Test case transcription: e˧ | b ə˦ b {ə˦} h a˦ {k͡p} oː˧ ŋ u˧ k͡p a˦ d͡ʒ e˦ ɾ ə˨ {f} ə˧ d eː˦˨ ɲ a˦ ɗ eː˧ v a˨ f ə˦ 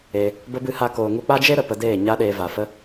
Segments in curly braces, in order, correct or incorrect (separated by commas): incorrect, incorrect, incorrect